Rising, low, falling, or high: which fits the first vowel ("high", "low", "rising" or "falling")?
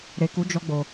low